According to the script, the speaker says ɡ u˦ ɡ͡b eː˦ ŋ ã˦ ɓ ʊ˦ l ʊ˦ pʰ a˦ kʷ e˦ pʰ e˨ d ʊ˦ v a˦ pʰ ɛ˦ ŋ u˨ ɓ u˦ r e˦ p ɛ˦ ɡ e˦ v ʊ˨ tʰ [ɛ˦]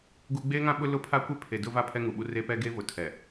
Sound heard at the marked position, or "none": ɛ˨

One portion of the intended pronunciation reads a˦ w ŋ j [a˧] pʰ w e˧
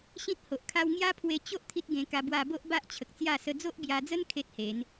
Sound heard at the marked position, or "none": a˦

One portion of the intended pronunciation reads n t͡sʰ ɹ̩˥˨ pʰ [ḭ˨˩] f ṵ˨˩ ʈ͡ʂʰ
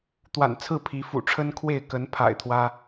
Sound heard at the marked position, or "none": i˨˦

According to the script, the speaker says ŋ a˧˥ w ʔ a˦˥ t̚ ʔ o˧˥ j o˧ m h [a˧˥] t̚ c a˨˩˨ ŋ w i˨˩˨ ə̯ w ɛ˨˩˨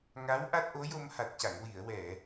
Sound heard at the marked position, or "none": a˨˩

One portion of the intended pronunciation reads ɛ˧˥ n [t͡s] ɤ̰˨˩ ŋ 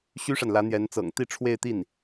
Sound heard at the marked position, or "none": t͡s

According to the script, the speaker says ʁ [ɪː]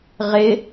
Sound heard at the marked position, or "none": ɪ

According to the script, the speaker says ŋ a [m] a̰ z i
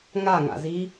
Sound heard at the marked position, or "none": ŋ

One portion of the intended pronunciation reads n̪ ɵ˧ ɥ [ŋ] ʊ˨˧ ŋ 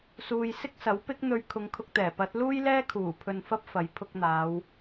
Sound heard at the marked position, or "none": kʰ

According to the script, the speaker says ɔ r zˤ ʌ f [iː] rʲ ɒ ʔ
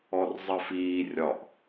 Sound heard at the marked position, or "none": iː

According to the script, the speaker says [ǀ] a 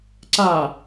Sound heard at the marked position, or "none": ǀ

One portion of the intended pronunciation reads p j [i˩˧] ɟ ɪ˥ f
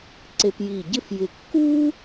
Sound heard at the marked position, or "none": i˧˩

